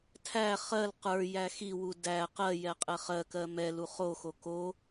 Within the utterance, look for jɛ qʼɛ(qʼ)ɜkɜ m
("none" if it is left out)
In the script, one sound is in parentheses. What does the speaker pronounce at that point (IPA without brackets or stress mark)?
χ